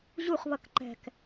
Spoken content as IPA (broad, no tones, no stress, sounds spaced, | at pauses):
ʑ u χ β ʌ k ǃ ɛ̤ k